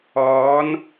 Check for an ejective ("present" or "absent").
absent